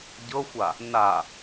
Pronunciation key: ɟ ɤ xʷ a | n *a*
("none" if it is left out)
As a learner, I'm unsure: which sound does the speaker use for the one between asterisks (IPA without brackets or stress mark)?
a